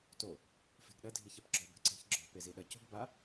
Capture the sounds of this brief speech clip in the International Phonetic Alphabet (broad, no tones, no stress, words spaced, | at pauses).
to | fe̤ɡɗɐ dʱiçɛpɡ͡ǁɔ be̤ǀe̤çɡ͡ǁɔ̤ peziɗɐ co̤ɡba